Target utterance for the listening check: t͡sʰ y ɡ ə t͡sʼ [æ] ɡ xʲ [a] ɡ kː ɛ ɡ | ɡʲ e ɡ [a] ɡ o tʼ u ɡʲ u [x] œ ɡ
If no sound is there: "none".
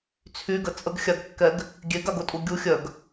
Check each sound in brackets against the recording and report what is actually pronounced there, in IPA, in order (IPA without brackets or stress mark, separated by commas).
ə, a, a, xʲ